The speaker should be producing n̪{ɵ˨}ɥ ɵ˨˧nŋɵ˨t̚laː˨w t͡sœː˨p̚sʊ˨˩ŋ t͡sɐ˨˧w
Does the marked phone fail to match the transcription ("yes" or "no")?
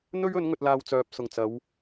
yes